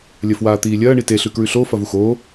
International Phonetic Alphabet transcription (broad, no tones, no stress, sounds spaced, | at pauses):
lʲ ɐ f w aː t̪ iː lʲ ɐː ɳ i t e ɬ ʉ k ɹ ʉ ɬ oː f ɐ v u x oː